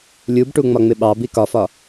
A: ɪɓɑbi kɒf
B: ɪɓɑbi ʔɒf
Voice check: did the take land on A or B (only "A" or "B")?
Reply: A